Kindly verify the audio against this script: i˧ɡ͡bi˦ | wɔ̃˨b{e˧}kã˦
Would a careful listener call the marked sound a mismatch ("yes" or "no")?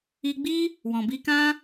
yes